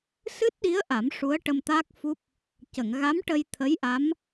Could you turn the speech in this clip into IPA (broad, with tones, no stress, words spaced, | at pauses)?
sɨ˦˥t̚ɗi˧˥ə̯ ʔa˨˩˦m ʂu˧˥ə̯ʈə˧m t̪a˦˥k̚fu˦˥p̚ | cə˨˩˨ŋɣa˧˥m ʈə˧jt̪ʰə˧˥jʔa˧˥m